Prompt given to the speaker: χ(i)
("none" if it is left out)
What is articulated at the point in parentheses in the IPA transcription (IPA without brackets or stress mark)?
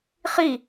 i